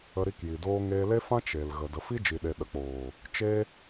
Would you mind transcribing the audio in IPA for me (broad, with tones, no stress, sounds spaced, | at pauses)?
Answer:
ə˧ ɾ i˧ k j i˨ d oː˧ ŋ eː˧ l e˦ f ã˦ t͡ʃ e˨ l ɣ ə˨ d ə˨ f i˦ d͡ʒ i˨ ɗ e˨ ɗ ə˨ k͡p oː˨ | t͡ʃ e˦